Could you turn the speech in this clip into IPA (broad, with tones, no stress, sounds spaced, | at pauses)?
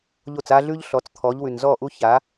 ʎ o˦˨ t͡s a˦ ɮ ʉ˦ ʎ ɬ ɔ˨˦ t͡s t̪ʰ ɔ˨˦ ʎ w ʉ˨ n z ɔ˦˨ ʔ u˦ ç a˨˦